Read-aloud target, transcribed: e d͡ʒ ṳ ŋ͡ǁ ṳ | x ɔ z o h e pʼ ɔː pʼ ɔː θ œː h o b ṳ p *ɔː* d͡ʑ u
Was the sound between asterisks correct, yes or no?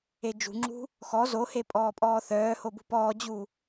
yes